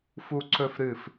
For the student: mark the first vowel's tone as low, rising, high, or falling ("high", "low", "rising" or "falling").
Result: high